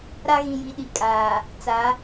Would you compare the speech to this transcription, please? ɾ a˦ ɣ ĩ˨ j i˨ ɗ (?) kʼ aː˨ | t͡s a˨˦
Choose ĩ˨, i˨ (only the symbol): i˨